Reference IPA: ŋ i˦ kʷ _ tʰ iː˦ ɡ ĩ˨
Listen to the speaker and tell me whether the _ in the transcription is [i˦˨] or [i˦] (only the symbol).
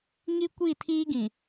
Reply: i˦˨